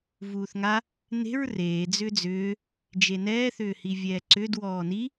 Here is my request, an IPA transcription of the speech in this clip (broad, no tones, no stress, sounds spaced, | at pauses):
v uː θ ŋ a | n e̤ ɹ r eː d͡z ʏː d͡z ʏː | d͡ʒ e n ɛː θ ʏː h i vʲ ɛː ǀ ʏ d w ɔː n i